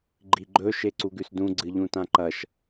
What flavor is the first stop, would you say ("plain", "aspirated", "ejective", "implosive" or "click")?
click